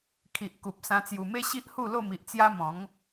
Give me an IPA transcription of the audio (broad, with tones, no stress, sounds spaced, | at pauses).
kʰ i˨ ʔ k u˨ p̚ s ã˧ t͡s j u˨˩ m e˦ ɕ i˦ ʔ h u˥˧ l o˥˧ m i˨ ʔ t͡s j a˦ m ɔ̃˨˦ ŋ